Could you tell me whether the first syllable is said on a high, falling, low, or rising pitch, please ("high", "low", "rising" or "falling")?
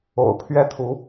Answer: low